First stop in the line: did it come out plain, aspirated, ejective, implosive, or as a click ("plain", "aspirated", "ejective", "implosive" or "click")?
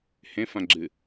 click